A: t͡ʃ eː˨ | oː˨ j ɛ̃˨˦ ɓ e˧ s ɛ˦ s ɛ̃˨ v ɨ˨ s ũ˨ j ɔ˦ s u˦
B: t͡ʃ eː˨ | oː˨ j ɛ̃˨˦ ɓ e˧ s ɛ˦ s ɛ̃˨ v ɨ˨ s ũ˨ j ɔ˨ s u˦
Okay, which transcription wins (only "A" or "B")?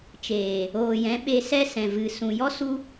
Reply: A